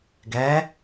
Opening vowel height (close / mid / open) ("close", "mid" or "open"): mid